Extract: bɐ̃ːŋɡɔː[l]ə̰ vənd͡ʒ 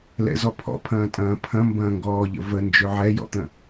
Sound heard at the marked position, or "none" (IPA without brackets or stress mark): ʎ